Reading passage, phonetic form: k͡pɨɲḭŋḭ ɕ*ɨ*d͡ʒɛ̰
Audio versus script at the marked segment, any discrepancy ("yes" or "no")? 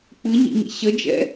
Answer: yes